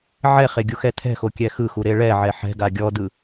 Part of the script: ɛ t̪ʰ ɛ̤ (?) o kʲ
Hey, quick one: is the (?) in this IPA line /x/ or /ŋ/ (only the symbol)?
x